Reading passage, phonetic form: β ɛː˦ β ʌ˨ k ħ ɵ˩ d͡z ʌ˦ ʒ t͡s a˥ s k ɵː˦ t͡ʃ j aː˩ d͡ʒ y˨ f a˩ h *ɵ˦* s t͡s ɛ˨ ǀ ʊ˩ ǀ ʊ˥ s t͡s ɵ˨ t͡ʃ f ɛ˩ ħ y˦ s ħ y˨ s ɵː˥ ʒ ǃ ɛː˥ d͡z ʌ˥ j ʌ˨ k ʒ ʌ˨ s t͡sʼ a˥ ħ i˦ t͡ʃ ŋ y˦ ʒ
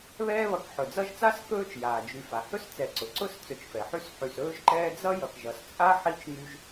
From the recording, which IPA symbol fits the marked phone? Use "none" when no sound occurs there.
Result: ɵ˦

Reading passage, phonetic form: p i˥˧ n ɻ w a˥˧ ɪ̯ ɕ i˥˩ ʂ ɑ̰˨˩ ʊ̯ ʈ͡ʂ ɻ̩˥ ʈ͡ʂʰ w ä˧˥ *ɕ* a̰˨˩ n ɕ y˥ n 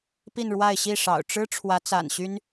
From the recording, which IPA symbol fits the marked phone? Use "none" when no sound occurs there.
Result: t͡s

